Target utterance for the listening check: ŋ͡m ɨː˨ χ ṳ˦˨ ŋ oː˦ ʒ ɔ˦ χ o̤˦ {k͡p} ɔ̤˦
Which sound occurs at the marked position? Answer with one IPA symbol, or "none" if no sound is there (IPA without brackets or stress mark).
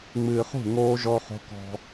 k